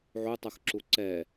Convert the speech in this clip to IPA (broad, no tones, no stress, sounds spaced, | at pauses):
ʕ u tˤ u x ǁ u ǀ ɛ